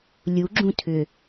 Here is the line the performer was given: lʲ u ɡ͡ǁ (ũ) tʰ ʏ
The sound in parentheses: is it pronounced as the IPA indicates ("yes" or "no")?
yes